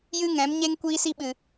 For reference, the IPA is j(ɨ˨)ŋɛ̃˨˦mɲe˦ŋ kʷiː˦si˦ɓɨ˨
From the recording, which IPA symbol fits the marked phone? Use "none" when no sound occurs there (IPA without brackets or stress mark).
ɨ˦